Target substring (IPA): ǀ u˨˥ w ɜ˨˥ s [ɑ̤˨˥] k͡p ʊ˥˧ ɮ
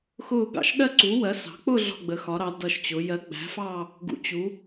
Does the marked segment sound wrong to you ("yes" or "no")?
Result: no